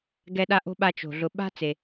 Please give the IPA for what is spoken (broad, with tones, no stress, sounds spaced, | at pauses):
ɡ ɛ˦ ɗ a˥ ʔ o̤˥ ɓ a˦ t͡ʃ o̤˩ ɮ ʊ˨ ɓ a̤˥ t͡s e˩